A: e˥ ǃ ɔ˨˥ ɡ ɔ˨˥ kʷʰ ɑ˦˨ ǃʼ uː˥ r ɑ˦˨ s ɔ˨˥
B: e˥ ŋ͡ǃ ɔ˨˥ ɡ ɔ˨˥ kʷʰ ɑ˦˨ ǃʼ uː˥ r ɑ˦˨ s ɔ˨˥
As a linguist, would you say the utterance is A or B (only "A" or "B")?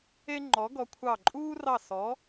B